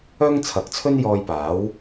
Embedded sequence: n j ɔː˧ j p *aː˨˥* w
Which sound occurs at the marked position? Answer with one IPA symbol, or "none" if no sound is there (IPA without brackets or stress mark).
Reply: aː˨˥